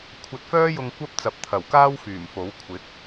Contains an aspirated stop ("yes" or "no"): yes